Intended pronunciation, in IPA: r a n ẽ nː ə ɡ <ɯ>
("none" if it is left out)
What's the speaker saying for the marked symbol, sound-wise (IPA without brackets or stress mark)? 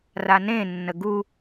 u